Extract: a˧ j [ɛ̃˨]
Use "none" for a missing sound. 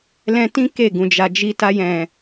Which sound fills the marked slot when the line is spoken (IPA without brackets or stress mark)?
ɛ̃˨